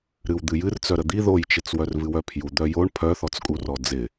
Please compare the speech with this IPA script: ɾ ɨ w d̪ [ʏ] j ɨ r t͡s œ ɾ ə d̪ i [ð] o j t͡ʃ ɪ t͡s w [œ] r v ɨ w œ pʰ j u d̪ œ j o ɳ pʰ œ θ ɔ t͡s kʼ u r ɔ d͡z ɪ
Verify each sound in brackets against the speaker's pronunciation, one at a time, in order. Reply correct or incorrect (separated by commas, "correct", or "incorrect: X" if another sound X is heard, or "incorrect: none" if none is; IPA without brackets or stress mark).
incorrect: ɨ, correct, correct